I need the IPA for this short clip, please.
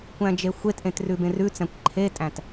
kʷ æ̃ d͡ʒ e xʷ e t ʔ ẽ t r ʉ b ẽ r ʉ t͡s æ̃ kʷ ǃʰ e tʼ æ̃ t

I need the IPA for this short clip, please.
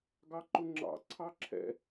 ɡ ɑ ǃ ʊ ŋ͡ǁ ɑ̰ ǀʰ ɑ ǁʰ ɛ̰

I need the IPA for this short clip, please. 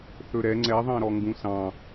θ ɵ ɾ ɛ ŋ͡ǀ ɛ ðˤ ɑ̃ ɾ ɔ ŋ ɡ ũ s ɑ̃

